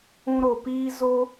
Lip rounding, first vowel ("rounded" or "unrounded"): rounded